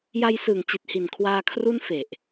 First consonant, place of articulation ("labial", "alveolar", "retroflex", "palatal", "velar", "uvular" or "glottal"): palatal